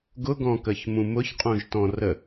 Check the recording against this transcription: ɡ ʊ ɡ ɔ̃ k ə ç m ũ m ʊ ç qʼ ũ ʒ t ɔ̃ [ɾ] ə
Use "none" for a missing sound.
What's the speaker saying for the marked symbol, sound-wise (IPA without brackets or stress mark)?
r